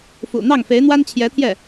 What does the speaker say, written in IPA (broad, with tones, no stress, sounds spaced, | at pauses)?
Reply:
f ṵ˨˩ n̪ ɑ˥˩ ŋ f e˧˥ ɪ̯ n̪ w a˥ n t͡ɕʰ j ɛ˧˥ t̪ʰ j ɛ˥˩